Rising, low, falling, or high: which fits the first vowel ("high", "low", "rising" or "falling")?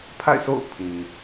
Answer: falling